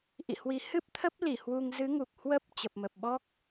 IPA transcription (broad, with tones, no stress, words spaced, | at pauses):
ʔḭ˧˨hwi˨˦ hɨ˦˥p̚t̪ʰə˦˥p̚ li˧˩hwu˧ŋ zɨ˨˦ŋu˨˩k̚ hwə˦˥p̚ t͡ɕə˨˩p̚mə˨˩p̚ɓɔ˦˥k̚